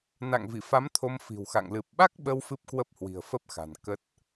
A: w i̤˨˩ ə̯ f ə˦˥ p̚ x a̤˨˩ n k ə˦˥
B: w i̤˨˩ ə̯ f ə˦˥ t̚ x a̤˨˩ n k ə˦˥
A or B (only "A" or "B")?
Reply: A